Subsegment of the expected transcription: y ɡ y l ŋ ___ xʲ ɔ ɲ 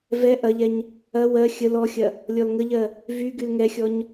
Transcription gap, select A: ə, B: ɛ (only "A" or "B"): B